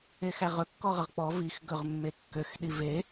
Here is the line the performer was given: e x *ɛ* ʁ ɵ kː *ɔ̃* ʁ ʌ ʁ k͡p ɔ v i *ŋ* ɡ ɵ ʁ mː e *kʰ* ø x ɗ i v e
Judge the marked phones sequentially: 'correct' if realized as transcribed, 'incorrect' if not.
incorrect: æ, incorrect: ɔ, incorrect: x, incorrect: kː

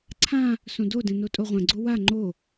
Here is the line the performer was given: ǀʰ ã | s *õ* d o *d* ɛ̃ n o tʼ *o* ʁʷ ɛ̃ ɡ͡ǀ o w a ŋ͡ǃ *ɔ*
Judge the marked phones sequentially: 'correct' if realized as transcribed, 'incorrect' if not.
correct, correct, correct, incorrect: o

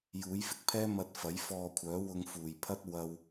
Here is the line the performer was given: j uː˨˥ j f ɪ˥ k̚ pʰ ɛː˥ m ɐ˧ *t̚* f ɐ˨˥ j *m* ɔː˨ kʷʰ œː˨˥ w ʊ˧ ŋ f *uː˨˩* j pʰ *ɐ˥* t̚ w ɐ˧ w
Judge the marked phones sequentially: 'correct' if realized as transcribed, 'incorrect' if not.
correct, incorrect: f, correct, correct

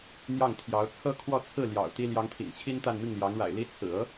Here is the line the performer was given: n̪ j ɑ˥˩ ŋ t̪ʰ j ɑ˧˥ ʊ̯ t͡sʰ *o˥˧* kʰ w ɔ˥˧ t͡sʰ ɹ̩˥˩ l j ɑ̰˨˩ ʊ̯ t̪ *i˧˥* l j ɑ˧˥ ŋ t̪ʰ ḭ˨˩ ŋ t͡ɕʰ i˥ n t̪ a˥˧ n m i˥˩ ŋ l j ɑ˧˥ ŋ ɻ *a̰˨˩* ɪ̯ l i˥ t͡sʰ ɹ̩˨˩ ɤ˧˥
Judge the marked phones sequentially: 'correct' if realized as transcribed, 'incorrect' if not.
incorrect: ɤ˥˧, incorrect: i˥, correct

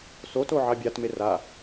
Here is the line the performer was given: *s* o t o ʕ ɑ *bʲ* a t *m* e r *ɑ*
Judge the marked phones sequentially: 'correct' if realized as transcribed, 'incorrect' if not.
correct, correct, correct, incorrect: a

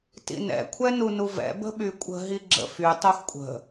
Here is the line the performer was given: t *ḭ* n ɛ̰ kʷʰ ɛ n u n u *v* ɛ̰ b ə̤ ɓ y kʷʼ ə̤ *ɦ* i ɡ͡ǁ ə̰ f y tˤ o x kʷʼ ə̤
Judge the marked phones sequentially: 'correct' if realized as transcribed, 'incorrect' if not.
correct, correct, correct

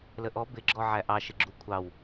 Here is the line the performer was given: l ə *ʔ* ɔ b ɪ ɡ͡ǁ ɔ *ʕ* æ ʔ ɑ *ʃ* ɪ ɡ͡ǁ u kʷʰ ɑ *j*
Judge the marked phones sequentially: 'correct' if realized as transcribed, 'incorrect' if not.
correct, correct, correct, incorrect: w

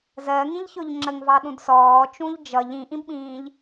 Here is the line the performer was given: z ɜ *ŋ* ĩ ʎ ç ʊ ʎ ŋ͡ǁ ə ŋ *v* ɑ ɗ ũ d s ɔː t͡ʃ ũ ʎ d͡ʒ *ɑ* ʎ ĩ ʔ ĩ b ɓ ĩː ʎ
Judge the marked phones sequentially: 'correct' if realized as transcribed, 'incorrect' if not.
correct, correct, incorrect: ʌ

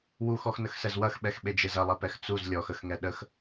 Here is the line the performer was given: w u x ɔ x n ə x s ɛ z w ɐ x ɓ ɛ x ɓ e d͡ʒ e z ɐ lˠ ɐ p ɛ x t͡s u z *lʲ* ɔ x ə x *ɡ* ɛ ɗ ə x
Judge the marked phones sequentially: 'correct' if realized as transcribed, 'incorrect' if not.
correct, incorrect: ŋ

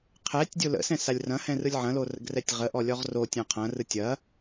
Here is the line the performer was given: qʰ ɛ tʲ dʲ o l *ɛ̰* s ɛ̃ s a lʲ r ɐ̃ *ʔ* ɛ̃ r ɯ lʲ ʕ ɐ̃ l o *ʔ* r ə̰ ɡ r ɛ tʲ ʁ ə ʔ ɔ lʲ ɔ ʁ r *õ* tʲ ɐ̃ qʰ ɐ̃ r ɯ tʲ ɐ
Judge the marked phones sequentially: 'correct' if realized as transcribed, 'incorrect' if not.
incorrect: ə̰, incorrect: h, incorrect: none, incorrect: o

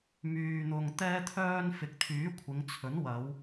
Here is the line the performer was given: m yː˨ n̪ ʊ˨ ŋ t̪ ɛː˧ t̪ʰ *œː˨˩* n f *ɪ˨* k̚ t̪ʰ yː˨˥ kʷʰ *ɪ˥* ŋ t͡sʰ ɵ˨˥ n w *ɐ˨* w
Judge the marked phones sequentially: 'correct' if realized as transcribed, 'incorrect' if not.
incorrect: œː˧, correct, incorrect: ɪ˨˧, incorrect: ɐ˨˧

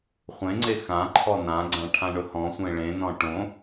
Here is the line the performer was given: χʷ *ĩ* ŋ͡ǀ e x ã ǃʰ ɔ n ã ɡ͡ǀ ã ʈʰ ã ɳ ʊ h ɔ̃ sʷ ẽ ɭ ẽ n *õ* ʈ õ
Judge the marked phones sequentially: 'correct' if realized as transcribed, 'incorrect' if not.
incorrect: ẽ, incorrect: ɔ̃

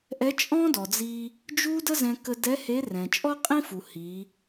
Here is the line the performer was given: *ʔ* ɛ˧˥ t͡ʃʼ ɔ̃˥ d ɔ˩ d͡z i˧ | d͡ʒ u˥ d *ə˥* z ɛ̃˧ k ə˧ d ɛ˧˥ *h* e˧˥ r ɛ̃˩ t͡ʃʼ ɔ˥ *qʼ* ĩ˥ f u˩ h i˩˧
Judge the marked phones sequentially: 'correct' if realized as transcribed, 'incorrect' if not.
correct, correct, correct, correct

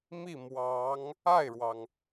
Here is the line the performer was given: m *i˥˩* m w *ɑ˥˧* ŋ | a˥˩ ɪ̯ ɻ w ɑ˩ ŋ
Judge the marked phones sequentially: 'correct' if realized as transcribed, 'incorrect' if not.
correct, incorrect: ɑ˧˥

